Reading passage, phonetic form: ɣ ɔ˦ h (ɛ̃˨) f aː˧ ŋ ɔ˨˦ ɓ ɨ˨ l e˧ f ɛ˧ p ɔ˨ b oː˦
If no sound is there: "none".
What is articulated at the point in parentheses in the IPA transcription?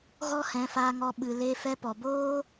ɛ̃˨˦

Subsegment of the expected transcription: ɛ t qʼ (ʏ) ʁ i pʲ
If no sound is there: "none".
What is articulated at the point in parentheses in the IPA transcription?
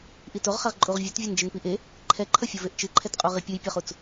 u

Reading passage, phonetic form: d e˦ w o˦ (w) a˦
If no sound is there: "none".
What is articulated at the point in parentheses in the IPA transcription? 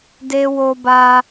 b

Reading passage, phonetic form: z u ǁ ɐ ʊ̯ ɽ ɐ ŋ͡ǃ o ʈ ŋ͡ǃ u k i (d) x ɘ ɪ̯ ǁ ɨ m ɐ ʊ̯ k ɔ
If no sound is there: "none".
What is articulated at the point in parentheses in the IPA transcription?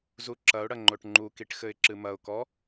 ʈ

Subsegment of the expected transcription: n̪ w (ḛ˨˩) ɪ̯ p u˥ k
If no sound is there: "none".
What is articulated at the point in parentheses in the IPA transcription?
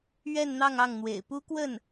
ḛ˨˩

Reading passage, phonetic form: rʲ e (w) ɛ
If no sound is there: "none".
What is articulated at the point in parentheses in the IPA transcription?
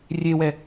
w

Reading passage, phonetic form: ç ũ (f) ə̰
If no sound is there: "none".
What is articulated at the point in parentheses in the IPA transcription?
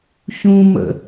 m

